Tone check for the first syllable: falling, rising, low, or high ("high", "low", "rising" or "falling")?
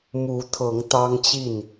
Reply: rising